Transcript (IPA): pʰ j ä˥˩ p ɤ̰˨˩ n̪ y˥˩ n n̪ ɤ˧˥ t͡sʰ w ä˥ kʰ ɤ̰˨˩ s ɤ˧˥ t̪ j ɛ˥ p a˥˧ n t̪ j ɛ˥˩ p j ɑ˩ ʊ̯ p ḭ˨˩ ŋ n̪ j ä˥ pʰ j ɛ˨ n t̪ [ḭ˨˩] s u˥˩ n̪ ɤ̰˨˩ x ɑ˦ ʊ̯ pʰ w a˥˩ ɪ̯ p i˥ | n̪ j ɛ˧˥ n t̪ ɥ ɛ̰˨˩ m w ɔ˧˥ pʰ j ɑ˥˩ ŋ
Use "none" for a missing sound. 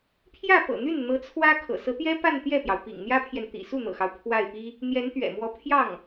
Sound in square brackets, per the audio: ḭ˨˩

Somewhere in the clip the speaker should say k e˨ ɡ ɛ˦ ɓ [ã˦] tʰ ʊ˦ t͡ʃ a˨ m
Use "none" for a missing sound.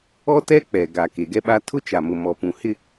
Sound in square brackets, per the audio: a˦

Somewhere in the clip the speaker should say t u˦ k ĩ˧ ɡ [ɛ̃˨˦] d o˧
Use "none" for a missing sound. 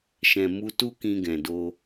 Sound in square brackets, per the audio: ɛ̃˨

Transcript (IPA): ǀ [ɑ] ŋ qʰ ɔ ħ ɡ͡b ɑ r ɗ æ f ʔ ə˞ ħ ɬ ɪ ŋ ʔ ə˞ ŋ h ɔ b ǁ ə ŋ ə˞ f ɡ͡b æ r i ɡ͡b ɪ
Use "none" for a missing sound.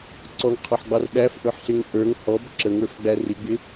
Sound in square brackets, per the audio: ɔ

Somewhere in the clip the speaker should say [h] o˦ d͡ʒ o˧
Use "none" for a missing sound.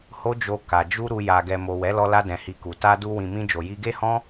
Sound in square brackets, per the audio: h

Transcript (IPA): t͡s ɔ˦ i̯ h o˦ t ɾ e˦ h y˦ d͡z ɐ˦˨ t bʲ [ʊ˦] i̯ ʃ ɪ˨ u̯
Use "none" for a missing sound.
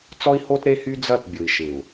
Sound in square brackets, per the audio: ʊ˨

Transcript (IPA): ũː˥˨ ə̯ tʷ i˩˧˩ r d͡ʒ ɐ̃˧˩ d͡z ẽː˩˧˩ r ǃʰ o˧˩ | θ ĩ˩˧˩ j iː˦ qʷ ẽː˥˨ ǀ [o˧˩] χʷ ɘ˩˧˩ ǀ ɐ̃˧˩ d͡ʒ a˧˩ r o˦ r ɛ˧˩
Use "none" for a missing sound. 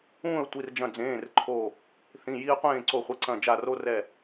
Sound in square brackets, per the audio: o˧˩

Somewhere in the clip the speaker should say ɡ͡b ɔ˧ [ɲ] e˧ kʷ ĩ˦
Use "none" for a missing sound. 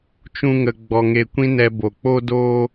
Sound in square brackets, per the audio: ŋ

